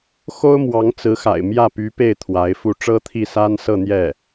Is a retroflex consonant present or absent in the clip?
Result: present